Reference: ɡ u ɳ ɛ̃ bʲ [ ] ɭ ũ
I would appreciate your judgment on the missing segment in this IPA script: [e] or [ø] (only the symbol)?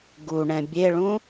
e